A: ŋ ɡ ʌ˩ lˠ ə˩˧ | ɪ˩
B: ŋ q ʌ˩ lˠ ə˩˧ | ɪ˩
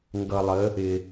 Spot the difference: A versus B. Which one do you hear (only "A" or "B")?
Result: A